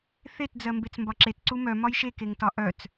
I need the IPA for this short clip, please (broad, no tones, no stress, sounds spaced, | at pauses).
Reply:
θ e t d͡z ɜ m b e t͡s m b ɒ ǁ e t ǀ u m œ m ɒ j ʃ e k e ŋ t ɒ ʔ œ t͡s